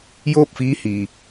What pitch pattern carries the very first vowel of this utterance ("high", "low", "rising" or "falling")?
falling